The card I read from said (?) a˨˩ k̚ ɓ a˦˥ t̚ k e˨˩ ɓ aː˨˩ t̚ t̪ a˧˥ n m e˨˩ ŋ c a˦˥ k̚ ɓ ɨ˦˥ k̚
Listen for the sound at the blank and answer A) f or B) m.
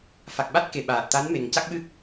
A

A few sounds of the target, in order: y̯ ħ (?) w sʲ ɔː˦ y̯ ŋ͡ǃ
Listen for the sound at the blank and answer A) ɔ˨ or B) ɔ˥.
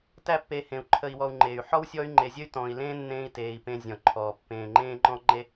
B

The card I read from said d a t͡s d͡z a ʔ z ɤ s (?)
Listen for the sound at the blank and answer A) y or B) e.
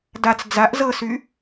A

